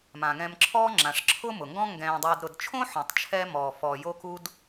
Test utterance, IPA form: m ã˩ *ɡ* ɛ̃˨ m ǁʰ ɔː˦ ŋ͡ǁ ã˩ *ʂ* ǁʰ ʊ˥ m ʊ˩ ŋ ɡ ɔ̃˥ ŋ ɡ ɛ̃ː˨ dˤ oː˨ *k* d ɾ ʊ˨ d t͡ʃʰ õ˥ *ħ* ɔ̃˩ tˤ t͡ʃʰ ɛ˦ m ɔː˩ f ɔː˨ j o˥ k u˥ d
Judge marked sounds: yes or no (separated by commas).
no, yes, no, yes